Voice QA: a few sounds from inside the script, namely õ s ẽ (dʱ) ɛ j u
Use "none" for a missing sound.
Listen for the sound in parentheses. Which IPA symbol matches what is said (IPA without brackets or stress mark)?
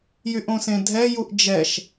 dʱ